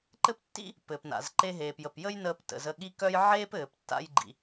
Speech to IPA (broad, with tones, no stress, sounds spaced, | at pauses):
ǃ ɘ˥ p tː ḭ˥ | p ɘː˩ p n a̰˩ z ǃ e˧ ɦ eː˩ p j ə˩ p j ə˥ j n əː˧ p t ə̰˩ z ə˧ ɠ i˥ k œ˥ j ʕ eː˥ p ɘː˩ p tː a̰˧ j ɡ͡ǃ ḭ˩